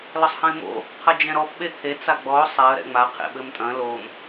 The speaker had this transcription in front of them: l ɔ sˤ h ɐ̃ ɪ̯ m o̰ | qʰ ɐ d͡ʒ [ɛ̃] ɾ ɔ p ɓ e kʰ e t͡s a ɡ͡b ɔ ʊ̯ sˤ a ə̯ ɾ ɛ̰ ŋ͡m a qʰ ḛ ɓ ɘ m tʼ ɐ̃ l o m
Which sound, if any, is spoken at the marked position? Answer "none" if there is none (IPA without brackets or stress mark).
ɛ̃